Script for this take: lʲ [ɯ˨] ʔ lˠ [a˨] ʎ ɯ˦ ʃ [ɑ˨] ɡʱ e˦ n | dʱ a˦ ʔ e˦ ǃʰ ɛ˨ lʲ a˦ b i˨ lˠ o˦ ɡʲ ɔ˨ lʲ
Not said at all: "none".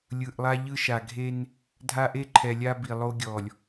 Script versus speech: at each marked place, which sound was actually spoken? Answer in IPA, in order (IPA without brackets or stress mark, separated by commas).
ɯ˨, a˦, a˨